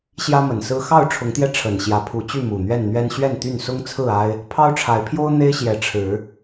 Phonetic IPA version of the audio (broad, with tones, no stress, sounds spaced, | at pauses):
ɕ j ä˦ m ə˨˩ n s ɹ̩˦ x ɑ˥˨ ʊ̯ ʈ͡ʂʰ ʊ˨˦ ŋ t̪ j ɛ˧ ʈ͡ʂʰ ə˨˩ n ɕ j ä˨˦ pʰ u˨˦ t͡ɕ y˥˨ m u˨˩ n̪ ɥ ɛ˥˨ n n̪ ɥ ɛ˦ n ɕ ɥ ɛ˥˨ n t̪ y˥˨ n s ʊ˦ ŋ t͡sʰ ɹ̩˥˨ a˦ ɪ̯ | pʰ ɑ˦ ʊ̯ ʈ͡ʂʰ a˨˦ ɪ̯ pʰ j o˦ ʊ̯ n̪ e˦ ɪ̯ ɕ j ɛ˨˦ ʈ͡ʂʰ ɻ̩˨˦